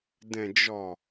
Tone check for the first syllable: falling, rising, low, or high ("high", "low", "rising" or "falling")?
low